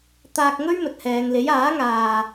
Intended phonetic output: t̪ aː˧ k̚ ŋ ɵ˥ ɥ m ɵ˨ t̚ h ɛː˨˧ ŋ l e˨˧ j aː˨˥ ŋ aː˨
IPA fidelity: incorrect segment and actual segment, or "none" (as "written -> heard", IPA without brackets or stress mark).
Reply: e˨˧ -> e˨˥